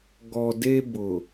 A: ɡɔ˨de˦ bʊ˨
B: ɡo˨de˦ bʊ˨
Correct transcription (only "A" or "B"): A